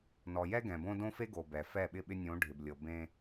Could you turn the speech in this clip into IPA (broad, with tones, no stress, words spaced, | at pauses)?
nɔ˨jɛ˦ɡɛ̃˨bõ˦ dõ˦fe˦ɡo˨ bɛ˨ fɛ˦˨ɓɪ˦˨ɓɪ˦ nʲõ˨˦ɖʱɪ˨blʲɤ˨ bẽ˦